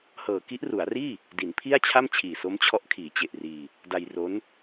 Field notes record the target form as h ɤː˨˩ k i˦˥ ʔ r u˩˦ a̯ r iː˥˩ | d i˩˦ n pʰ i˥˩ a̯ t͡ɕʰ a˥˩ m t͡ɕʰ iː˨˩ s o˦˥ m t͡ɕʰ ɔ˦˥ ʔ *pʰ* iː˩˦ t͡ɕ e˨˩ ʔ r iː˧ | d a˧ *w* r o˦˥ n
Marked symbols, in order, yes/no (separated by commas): no, no